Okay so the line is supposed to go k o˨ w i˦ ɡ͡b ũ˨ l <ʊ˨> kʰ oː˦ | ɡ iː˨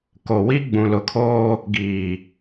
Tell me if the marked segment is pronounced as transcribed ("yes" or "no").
yes